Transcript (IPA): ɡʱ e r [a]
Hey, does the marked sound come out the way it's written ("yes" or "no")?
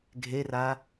yes